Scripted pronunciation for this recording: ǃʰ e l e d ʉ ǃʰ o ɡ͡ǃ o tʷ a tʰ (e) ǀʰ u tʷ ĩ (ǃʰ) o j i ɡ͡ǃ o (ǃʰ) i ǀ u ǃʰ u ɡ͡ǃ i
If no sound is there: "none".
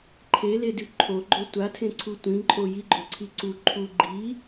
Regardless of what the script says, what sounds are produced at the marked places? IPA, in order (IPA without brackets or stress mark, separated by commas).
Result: ẽ, ǃʼ, ǀʰ